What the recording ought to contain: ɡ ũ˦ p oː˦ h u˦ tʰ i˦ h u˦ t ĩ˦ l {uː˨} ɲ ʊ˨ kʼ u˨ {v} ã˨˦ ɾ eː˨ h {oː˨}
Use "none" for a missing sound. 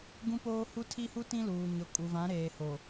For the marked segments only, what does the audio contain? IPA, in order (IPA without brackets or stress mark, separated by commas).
uː˨, v, o˨